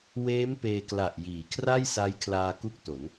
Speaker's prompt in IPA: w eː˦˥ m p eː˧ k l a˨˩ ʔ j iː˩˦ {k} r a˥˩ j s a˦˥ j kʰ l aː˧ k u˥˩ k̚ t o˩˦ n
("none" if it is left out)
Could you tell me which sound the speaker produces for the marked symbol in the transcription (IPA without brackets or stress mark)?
kʰ